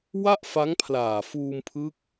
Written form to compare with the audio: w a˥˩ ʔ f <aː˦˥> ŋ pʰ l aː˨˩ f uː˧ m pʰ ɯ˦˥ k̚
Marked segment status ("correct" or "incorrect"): incorrect